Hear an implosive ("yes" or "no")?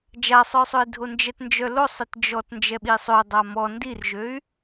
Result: yes